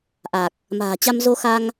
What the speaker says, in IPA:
ʔa˨˩k̚ | ma̤ː˨˩t͡ɕa˧m zo˧xa˧ŋ

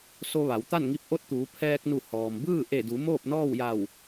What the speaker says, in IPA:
so˧ʋa˩˧wt̪a˥˨nŋi˧˥p̚ ʔo˧˥t̚t̪uː˩˧ pʰɛː˧k̚nu˧˩ hɔː˩mbɯː˥˨ ʔe˧˩du˩˧ moː˥˨p̚nɔː˥˨wja˧˩w

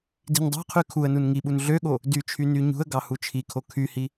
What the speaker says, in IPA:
di̤ɲdˤɑ̤qʰy kʰuə̯nun ŋiɓun ɮøɠo | dyt͡ʃʰy nyɲṳə̯ɡɑ hut͡ʃʰikʰo kʰyhi

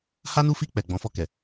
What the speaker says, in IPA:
ha˦nu˦fi˦˨k͡pɛ˨ ɡ͡bɔ̃˨˦fɔ˧kɛ˨

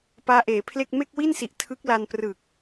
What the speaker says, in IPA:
paː˦˥ʔeː˩˦pʰle˥˩k̚ me˥˩k̚wi˥˩nsi˨˩ʔ tʰɯ˦˥k̚la˧n prɯ˨˩k̚

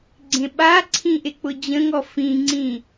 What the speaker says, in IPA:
ɡ͡ǀẽɓaǀʰĩ ʔek͡pʊd͡ʑə̃ŋɔ fĩŋ͡ǀĩ

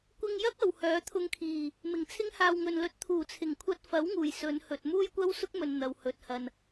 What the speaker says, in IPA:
kʷɪ˧ŋjɐ˥k̚ ɐ˨whœː˨˥t̪ʰʊ˧ŋkʰiː˨˩ | mɪ˨˩ŋt͡sʰɪ˥ŋhaː˧w ŋɵ˨nlɵ˨˥t̚ t̪ʰuː˨˩t͡sʰɪ˨˩ŋ kʷʰɐ˧t̚fɐ˨˥wŋuː˨˩j sɵ˨˧n hɵ˨t̚ muː˥jkʷɐ˥wsʊ˥k̚mɵ˨n n̪ɐ˨whɵ˨t̚hɐ˨n

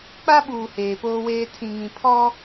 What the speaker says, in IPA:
k͡pa˦ɓuː˨ heː˨poː˦weː˦ tʰĩ˨ŋĩ˨ pʰɔ˦

